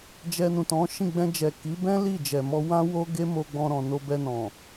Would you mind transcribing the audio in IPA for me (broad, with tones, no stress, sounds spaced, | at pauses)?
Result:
d͡ʒ ɛ˧ n ũ˨ t ɔ̃˨˦ ʃ ĩ˦˨ ɡ͡b ɛ̃˧ d͡ʒ ɛ˨ k i˨˦ b ɛ̃˦ l i˦˨ d͡ʒ ɛ˨ m ɔ˧ w ã˦ w o˦ ɡ e˦ m o˧ ɡ͡b ɔ̃˧ ɾ ɔ̃˨ n o˧ b ɛ˧ n ɔ̃˨